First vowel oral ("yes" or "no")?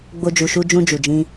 yes